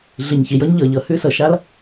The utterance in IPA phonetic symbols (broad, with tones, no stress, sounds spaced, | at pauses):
ɮ i˨ ɲ ç i˨ j ɤ˦ ɲ ʎ ɤ˨ ʎ ɤ˨ h ʉ˧ s ɤ˨ ʃ a˦ l